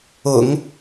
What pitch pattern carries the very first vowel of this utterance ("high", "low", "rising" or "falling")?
low